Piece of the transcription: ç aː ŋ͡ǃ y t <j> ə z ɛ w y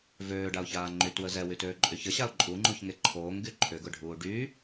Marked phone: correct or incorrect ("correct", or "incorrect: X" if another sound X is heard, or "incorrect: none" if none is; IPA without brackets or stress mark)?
incorrect: w